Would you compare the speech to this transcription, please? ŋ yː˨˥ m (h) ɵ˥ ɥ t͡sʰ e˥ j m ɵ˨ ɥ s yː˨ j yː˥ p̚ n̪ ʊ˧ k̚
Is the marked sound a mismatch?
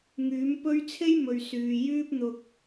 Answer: yes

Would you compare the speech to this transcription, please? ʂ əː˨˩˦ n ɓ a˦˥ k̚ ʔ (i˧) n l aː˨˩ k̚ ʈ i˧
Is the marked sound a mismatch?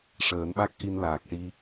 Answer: no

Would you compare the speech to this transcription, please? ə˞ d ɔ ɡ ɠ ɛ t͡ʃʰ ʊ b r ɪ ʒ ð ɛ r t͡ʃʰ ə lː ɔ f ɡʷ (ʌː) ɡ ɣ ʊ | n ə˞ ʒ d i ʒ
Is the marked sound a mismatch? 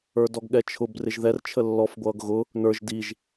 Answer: no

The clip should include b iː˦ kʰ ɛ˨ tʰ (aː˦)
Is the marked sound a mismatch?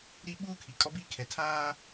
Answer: no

